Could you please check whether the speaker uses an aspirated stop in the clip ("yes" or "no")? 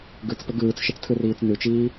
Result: yes